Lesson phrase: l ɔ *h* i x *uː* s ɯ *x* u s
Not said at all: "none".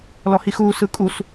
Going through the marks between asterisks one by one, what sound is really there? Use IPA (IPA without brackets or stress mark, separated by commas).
h, uː, kʼ